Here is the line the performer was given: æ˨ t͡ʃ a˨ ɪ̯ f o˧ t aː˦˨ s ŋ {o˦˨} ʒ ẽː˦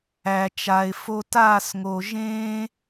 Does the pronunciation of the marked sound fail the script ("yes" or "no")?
yes